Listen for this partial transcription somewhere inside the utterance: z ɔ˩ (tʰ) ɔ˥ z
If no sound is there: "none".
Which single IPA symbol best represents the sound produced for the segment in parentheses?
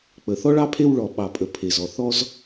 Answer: θ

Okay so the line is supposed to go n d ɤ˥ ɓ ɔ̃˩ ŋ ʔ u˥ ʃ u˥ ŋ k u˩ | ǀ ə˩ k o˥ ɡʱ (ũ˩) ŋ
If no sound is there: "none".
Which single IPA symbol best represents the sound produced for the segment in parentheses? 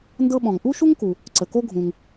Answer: ũ˩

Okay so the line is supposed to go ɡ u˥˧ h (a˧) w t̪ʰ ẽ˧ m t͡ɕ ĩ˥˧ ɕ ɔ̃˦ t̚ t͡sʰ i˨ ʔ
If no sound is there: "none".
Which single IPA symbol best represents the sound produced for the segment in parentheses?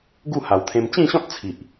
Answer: a˨˩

